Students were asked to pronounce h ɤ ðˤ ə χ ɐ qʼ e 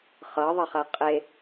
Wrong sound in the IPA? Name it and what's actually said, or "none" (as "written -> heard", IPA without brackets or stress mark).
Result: h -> χ